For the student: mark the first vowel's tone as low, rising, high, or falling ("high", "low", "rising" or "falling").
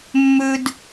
high